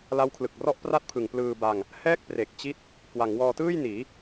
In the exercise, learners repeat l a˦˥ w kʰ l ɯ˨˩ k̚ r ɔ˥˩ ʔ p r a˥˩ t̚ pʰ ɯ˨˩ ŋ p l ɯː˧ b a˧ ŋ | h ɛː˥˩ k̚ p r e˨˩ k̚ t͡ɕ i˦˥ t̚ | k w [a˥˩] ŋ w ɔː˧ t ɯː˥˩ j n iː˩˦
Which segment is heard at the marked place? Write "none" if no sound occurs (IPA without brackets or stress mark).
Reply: a˩˦